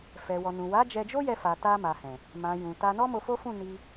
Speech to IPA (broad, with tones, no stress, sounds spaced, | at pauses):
f ɛ˨ w ɔ˨ n ũ˨ w a˨˦ d͡ʒ ɛ˧ d͡ʒ o˦ j ɛ˧ f a˨ t a˧ m a˨ h ɛ̃˨ | m ã˨ j ũ˨ t a˧ n ɔ˦ m o˧ f o˦ f ũ˦˨ n i˧